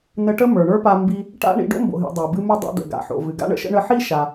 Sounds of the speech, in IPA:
nə˧ʈə˥ mə˞˩ɳə˞˥pa˧ mbi˧ | ʈa̰˥ ɳḭ˧ɖo̰˥mbo̰˩ɦḭ˩ dˤa˩bɨ˧mɨ˧ dˤo̰˧d̪ə̰˩ɡa̰˩ħo̰˩ vɨ˩ɡa̰˥ɳə̰˧ʃə̰˥ ɳə˧ħi˥ ʃa˩

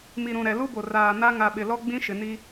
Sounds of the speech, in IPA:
mi˨ɾũ˨ ɾɛ˨lu˦bo˨ raː˨na˦ ŋa˨ɓɪ˨ lɔ˦ɡ͡bĩ˦ʃɪ˨ni˦

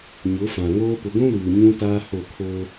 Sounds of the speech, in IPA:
ɲʊ˨˦fã˨ŋoː˦ pʊ˨ɡʷũ˦luː˨ ɲũ˦ taː˦ho˦˨kʰoː˦

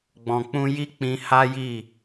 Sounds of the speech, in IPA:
ɡ͡bɔ̃˨k͡pũ˧ji˦ k͡pĩ˧ha˦ji˦˨

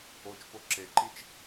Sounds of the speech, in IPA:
ot͡ʃpo ǁeǃit͡ʃ

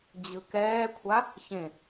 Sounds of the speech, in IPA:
d͡ʑɯkɛːkʷʰa | çẽ

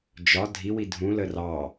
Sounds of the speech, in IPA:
d͡ʒɒ dʱiwi dʱũlə rɑ

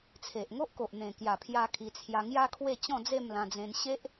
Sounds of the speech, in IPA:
t͡sʰe˨ʔŋo˦ʔko˨ʔ n̪ẽ˨˩kja˨˩pʰja˧ kʰi˧t͡sʰja˧ ŋja˦kʰwe˥˧t͡ɕɔ̃˥˧d͡ze˥˧m lã˧d͡zẽ˧nɕe˦ʔ

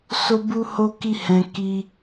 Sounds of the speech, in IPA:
so˦bu˦ ho˦ki˦hɛ̃˧ ki˧

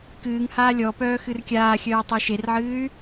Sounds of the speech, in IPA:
kɨːŋ haːlʲɔpœː xɨrkʲaːxʲœː tˤeʃerʕɨːy̯

